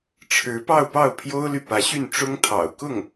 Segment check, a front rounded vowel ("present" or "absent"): present